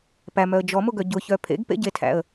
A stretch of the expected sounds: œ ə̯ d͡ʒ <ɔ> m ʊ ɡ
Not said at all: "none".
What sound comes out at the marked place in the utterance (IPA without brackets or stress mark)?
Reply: ɔ